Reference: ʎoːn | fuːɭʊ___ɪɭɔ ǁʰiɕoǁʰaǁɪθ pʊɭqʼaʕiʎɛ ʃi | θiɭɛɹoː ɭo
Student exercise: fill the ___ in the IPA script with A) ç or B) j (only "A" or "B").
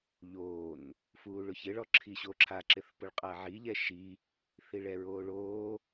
A